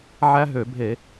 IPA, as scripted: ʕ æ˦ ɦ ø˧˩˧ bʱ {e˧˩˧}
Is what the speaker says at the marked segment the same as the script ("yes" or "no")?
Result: yes